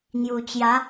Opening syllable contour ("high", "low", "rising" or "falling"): low